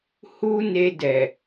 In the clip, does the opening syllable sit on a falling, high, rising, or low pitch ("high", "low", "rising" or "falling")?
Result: high